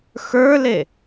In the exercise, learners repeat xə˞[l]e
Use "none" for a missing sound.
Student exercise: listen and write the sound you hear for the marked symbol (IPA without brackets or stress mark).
l